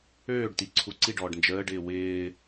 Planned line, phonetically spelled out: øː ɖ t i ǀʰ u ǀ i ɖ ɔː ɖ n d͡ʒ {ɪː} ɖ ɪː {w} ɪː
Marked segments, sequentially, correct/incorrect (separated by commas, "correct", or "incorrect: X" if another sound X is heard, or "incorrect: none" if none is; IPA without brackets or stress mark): incorrect: əː, correct